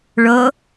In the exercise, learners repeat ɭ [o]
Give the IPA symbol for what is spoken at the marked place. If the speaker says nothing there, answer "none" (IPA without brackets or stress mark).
o